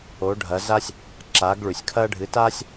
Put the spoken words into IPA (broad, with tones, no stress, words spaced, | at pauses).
o˩˥ɖʱɐ˩˥za˥sʲ | ǁaː˩˥ɡɭʉ˩sʲkʰɐː˥ ɖʱɨ˩˥taː˥sʲ